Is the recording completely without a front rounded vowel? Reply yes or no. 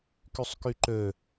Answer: no